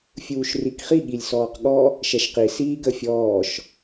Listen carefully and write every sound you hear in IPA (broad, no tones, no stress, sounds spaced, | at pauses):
fʲ uː ʃ r i k χ i ɠ i lʲ s ɔː q ɠ ɔ | ʃ ɛ ʃ q i s iː ɡ ə fʲ ɔː ʃ